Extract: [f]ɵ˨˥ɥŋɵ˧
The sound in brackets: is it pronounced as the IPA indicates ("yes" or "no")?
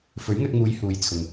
yes